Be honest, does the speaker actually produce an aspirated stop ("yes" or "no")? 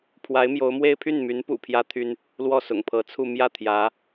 yes